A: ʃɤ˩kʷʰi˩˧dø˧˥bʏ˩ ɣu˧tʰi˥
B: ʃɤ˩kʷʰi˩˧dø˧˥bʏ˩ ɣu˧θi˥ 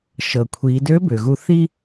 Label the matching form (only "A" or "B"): B